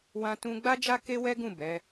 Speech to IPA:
w ã˦ t ũ˦ ɡ͡b a˦ d͡ʒ a˦ k e˦ w ɛ˦ ɡ ũ˦˨ b ɛ˨˦

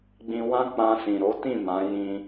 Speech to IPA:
ɡ͡b ĩ˧ w ã˦ k͡p ã˧ s ĩ˨ ɾ o˨˦ t ĩ˦˨ m ã˨˦ j ĩ˧

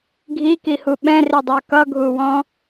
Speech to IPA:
ɡʱ i k i h u ɓ ɛ̃ r i dˤ ə˞ k ʌ ɡʱ u w ɔ̃

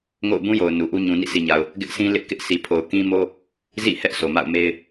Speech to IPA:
ŋ o̰˦˨ ʊ̯ b ũ˦ j o˨ ʊ̯ n u˨ ʔ u˦ ɲ ũ˨ n ḭ˦˨ sʰ i˨ ɲ a˨ ʊ̯ | ɡ ɪ˦ ʔ sʰ ĩ˦ l ɪ˦ ʔ k ɪ˦ ʔ sʰ i˨ pʰ o˨ ʊ̯ k ĩ˦ m o˦ | z ḭ˦˨ h ɛ˦ ʔ s o˨ m a̰˦˨ ʊ̯ m e˦ ɪ̯

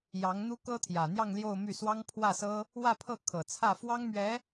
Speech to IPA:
j ɑ˧˥ ŋ n̪ u˥ k ɤ˥ t̪ʰ j ä˨˩ n̪ j ɑ˥˧ ŋ l j o˥˧ ʊ̯ m y˥˩ s w ɑ˥ ŋ pʰ w ä˥˩ s ɤ˥ | w ä˥˧ pʰ ɤ˥˩ kʰ ɤ˨˩ t͡sʰ ä˥˩ f w ɑ˥ ŋ m ɥ ɛ˧˥

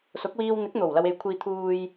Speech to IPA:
s ʊ˨˥ k̚ w iː˧ w n̪ ɪ˨˥ k̚ n̪ o˨˩ w l ɐ˧ w e˨˧ j kʷʰ iː˧ t̪ʰ uː˨ j

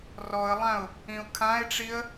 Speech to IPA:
r ɔ ə̯ lˠ ã ʊ̯ | ĩ ʊ̯ kʰ ã ɪ̯ ʈ͡ʂ i ə̯

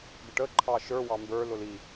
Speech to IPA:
ɡ ə ʈ ə ǃʰ ɑ ʃ ə˞ w ɑ m b ə˞ l ʊ l i

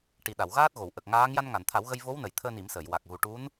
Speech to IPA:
ʈ i˨˩ ɗ a˨˩˨ w ɣ aː˦˥ t̚ ɣ o˨˩˨ w ʔ ə˨˩ k̚ ŋ aː˧˥ ŋ j a˧ n ŋ a˨˩˨ n t̪ʰ a˨˩˦ w ɣ ə˧ j v o˧˥ w n ə˨˩˨ j t̪ʰ əː˧ n i˨˩˦ m s əː˨˩˨ j w a˨˩ k̚ ɣ u˨˩ ʈ u˧˥ n

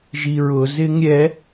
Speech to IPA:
ʒ i ɹ ʊ z ɪ ŋ ɾʲ ɛ

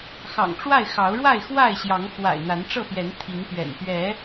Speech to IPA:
x ɑ̰˨˩ ŋ ʈ͡ʂ w a˥˨ ɪ̯ x ɑ˨˦ ʊ̯ ɻ w a˥˨ ɪ̯ x w a˥˨ ɪ̯ ɕ j ɑ˨˦ ŋ x w a̰˨˩ ɪ̯ n̪ a˨˦ n ʈ͡ʂ ɤ˥˨ p j ɛ˨˦ n t̪ʰ i˨˦ ŋ p ɥ ɛ̰˨˩ n p ɥ ɛ˨˦

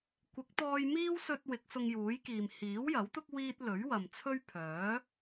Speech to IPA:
kʷ ɪ˨˥ k̚ t̪ ɔː˧ j m iː˥ w s ɵ˧ t̚ w ɪ˨˥ k̚ s ʊ˧ ŋ j uː˨˥ j k iː˨ m h iː˨˥ w j ɐ˨˥ w t̪ ʊ˥ k̚ w iː˥ t̚ l ɵ˨˥ ɥ w ɐ˨ m t͡sʰ ɵ˥ ɥ pʰ œː˨˥

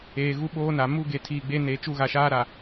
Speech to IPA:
eː˨ ɣ u˦ ɓ oː˦ n a˨ m u˦ ɡ e˨ tʰ iː˨ ɡ͡b e˦ n e˨˦ t͡ʃ u˦˨ ɣ a˨ ʃ aː˦ ɾ a˨

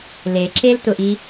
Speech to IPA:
l e ǁ e l t ʊ ʔ i

